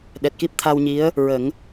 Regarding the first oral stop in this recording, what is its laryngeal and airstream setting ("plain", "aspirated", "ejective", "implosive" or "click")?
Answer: implosive